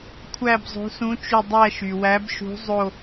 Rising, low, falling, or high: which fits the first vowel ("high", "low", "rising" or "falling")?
falling